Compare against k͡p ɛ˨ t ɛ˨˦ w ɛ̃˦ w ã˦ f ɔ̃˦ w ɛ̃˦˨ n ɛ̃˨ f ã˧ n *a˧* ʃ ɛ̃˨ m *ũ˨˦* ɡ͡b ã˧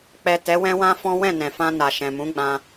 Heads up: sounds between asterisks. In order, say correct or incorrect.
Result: incorrect: a˨, correct

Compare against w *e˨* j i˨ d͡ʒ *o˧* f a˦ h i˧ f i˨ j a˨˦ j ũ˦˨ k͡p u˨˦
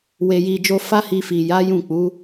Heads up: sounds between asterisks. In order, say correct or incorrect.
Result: correct, correct

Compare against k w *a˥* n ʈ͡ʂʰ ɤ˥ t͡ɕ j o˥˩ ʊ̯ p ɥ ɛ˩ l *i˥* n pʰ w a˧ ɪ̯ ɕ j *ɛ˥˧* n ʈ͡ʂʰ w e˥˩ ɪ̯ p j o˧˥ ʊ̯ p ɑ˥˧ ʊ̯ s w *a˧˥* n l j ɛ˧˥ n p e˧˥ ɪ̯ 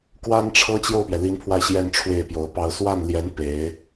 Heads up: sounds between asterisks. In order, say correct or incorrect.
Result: correct, incorrect: i˧˥, correct, incorrect: a˥˩

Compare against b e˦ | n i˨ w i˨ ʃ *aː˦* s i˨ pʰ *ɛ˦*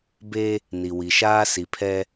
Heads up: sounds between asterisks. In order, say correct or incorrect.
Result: correct, correct

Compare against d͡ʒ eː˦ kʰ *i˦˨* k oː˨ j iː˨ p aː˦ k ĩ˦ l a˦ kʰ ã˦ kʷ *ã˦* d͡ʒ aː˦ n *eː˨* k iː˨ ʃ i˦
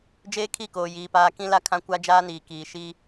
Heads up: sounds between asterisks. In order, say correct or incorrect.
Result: correct, incorrect: a˦, incorrect: iː˨

